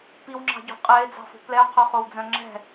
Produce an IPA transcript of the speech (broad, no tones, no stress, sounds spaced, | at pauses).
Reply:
p i w ŋ͡ǁ ɑ̤ ɟ o̤ qʼ ɛ e̯ d͡z ɑ̤ f o̤ p l ɛ o̯ qʰ o χ o w d͡z œ̃ ŋ͡ǁ ɛ̤